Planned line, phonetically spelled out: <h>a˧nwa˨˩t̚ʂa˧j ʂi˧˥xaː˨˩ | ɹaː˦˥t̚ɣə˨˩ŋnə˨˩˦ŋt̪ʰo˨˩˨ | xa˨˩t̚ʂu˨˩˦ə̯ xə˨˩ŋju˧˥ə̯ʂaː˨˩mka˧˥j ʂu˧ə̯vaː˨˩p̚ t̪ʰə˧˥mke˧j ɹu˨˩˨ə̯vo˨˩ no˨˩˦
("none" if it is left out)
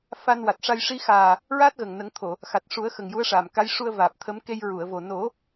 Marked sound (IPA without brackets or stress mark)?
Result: f